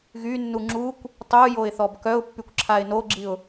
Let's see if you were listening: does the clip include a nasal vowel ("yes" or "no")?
no